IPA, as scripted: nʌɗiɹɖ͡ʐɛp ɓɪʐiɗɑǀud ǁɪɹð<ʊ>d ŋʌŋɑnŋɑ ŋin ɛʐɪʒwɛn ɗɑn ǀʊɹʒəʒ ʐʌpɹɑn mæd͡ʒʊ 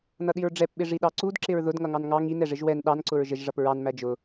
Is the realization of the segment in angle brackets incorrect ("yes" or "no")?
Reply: no